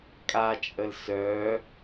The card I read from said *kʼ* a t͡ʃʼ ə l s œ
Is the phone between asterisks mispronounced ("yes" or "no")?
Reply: no